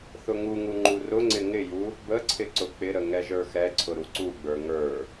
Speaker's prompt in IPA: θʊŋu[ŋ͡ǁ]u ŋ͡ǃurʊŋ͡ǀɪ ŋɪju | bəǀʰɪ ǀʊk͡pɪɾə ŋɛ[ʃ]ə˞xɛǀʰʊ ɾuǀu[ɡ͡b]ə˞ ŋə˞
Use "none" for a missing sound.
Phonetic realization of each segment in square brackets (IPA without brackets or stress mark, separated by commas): ŋ, ʒ, ɡ͡b